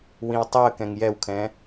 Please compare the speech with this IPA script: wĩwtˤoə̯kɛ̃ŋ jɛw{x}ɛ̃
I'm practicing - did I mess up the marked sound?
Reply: yes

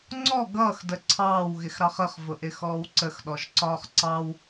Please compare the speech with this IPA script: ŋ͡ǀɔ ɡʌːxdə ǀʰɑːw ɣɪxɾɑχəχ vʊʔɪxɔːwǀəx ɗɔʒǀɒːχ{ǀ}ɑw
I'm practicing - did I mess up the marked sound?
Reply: no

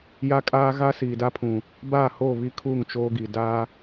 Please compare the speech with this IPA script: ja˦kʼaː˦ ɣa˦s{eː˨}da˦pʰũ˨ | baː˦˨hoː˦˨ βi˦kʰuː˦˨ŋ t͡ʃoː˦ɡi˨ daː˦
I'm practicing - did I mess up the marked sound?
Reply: yes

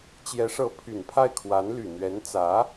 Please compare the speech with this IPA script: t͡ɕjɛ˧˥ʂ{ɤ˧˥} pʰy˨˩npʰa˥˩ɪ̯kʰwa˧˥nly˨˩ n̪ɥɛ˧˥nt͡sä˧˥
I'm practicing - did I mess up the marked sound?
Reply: no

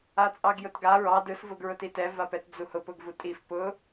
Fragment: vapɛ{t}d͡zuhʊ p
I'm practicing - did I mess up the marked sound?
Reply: no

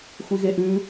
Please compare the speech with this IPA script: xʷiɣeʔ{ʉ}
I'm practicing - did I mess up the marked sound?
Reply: no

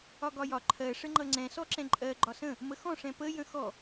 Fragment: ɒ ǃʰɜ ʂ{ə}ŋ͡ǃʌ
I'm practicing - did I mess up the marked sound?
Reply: no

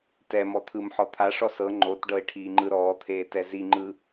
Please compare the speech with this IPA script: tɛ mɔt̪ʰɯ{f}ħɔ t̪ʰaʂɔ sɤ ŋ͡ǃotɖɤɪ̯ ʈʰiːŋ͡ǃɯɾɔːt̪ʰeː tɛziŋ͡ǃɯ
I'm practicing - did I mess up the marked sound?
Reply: yes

